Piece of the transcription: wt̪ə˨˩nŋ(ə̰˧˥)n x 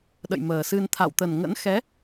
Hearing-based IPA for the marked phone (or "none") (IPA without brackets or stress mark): ə̰˧˥